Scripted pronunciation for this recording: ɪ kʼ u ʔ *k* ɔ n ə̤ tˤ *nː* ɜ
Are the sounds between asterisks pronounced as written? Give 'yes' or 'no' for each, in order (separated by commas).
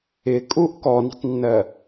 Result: yes, yes